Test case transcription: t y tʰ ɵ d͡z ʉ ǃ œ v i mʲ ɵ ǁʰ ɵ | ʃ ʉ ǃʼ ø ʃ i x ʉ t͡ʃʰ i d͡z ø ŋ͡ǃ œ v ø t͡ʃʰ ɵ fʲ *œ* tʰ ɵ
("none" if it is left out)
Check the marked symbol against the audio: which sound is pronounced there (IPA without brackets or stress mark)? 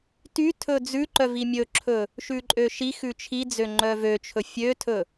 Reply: ø